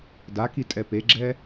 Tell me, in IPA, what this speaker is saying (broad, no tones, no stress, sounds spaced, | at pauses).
d a k i tʼ ɛ p e ɡ͡ǁ ɛ